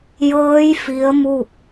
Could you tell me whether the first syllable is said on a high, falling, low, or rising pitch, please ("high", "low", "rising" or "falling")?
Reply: rising